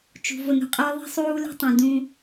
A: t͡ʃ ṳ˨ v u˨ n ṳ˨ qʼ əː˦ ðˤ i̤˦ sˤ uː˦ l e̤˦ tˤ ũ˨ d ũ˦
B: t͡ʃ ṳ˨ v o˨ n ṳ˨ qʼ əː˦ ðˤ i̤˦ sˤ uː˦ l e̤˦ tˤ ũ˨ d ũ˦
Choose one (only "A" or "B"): B